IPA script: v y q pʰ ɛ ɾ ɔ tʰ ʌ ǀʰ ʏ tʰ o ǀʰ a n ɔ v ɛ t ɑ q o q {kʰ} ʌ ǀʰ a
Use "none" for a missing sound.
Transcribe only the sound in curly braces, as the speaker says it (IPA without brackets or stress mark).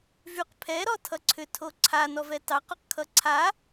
kʰ